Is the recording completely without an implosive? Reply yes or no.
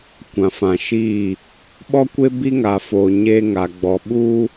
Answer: no